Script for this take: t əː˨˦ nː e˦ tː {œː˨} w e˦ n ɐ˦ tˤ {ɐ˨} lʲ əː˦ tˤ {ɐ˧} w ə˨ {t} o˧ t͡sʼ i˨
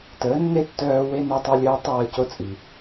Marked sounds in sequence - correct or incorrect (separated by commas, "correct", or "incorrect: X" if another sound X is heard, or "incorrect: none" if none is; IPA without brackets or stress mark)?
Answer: incorrect: œː˧, incorrect: ɐ˦, incorrect: ə˧, incorrect: c